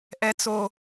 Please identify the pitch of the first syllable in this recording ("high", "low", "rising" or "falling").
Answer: high